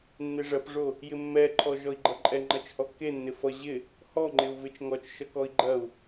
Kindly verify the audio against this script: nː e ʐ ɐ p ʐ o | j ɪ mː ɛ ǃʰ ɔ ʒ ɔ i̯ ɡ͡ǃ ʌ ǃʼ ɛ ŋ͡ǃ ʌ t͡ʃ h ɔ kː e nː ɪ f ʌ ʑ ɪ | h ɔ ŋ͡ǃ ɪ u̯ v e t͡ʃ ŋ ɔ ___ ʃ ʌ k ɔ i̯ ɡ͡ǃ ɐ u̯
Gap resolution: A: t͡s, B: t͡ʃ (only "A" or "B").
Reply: B